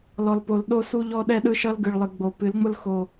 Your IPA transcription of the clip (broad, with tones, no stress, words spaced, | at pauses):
lɔ˨lpo˨l ɗo˦su˦ʎɔ˦ ɗɛ˦ɗɯ˦ʃʌ˦l ɡɯ˨ɭlˠɨ˨ɡ͡bo˨˦ pɨ˨˦lŋ͡mʊ˦lxo˨